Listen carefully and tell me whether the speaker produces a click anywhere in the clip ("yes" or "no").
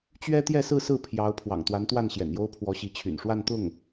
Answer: no